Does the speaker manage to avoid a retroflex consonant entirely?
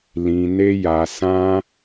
yes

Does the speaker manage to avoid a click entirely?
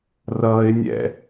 yes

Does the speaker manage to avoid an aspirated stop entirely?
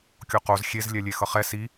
yes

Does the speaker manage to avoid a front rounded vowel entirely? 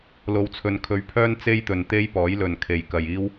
no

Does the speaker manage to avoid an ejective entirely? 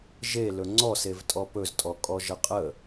no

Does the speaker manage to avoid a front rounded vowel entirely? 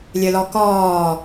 no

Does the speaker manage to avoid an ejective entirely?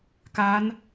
yes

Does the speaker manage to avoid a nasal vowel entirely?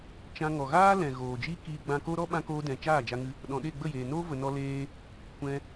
no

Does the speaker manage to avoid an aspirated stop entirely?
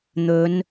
yes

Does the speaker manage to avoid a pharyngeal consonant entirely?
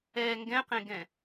yes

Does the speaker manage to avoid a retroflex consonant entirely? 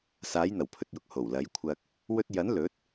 yes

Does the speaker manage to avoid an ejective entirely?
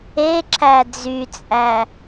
no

